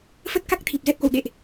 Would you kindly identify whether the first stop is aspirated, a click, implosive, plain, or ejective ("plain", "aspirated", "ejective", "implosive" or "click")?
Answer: plain